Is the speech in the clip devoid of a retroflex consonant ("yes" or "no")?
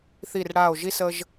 no